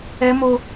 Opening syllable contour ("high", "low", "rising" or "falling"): high